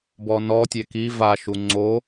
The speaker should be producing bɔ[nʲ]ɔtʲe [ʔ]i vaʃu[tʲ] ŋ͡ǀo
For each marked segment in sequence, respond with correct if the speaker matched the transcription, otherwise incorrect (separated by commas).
incorrect, incorrect, incorrect